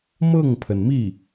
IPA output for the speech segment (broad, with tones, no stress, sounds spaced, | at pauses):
m ɤ˥˩ ŋ pʰ ə˩ n m i˥˩